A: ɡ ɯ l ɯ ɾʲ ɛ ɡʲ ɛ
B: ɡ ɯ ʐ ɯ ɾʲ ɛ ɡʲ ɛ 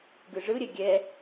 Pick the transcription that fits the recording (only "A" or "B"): B